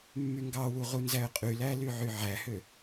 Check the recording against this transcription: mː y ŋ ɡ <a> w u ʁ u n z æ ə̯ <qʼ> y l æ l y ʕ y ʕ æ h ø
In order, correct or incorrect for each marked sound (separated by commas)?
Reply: incorrect, correct